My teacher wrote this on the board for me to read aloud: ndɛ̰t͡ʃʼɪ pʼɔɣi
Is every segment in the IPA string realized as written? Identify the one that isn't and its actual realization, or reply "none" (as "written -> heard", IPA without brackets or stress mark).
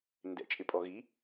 none